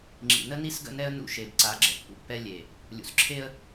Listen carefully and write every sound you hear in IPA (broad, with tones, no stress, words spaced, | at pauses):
ŋ͡ǁḭ˨nə˦ni˦sɡə̰˦˨ nɛ˦ə̯nṵ˦˨ ʃe˨bǀa˨˦ ɡ͡ǁə˨pːṵ˦ pːɛ˦ lʲe˨ | lʲṵ˨sǁʰe˦ə̯